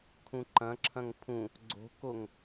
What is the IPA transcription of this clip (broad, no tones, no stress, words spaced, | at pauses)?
kʰũǃɐ̃ǁʰɐ̃ŋ pʰũ | ɡ͡ǀo̤koŋ